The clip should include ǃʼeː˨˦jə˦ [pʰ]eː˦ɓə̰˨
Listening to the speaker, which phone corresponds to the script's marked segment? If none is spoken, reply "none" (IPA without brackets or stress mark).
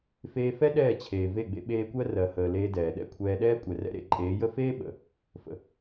f